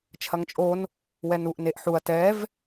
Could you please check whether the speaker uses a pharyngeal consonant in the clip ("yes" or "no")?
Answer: yes